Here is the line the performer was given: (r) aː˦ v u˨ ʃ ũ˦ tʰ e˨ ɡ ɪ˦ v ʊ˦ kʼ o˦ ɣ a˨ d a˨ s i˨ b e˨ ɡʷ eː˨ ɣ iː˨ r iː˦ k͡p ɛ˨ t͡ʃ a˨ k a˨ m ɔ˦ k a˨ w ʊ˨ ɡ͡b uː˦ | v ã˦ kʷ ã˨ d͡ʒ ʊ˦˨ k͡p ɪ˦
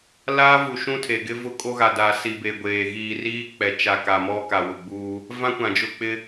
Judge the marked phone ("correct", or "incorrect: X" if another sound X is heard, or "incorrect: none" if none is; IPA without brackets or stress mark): incorrect: l